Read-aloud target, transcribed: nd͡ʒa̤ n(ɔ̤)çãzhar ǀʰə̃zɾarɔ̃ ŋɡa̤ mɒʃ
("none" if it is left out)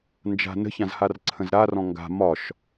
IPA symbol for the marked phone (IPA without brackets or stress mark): ə̤